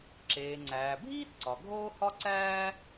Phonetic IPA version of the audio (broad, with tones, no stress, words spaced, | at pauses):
ǁeː˩ŋ͡ǀæː˩ bʱiː˥tǀɒ˩ ɡʱoː˥hɒ˥ǀæː˥